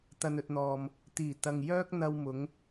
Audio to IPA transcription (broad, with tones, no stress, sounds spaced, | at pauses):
t̪ ɐ˨ n ɵ˨ t̚ n̪ ɔː˨ m | t̪ iː˨˩ t̪ ɐ˨ ŋ j œː˥ k̚ n̪ ɐ˧ w m ʊ˨˧ ŋ